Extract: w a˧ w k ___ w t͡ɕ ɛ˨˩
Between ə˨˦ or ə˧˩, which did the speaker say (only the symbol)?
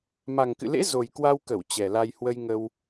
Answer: ə˧˩